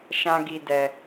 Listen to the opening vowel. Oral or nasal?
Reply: nasal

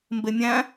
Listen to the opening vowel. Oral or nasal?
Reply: oral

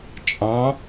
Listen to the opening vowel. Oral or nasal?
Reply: nasal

